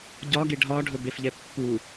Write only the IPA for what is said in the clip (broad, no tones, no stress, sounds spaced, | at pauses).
ɟ ɒ ɡ e ɖʱ ɒ ɖʱ ɵ b e f ʎ ɛ pː u